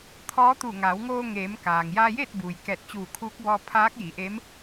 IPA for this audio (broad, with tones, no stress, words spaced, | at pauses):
t̪ʰɔː˧˥t̪u˧˩ ŋa˩˧wŋoː˧ ŋeː˩˧m kaː˩ŋ jaː˧jeː˥˨t̚buː˩j kɛː˧˩t̚t͡ɕuː˧˩kʰuː˧˥k̚bɔː˧ pʰaː˧˥k̚ji˩˧ʔe˧˥m